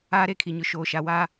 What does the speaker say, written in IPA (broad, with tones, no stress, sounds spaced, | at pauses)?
aː˦ ɾ e˦˨ kʰ i˨ ɲ ʊ˨ ʃ oː˨ ʃ a˨ w a˦